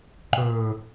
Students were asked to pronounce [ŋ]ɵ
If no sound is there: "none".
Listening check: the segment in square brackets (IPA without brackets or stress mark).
ǃ